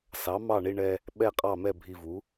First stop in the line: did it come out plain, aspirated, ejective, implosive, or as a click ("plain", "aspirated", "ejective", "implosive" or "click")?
implosive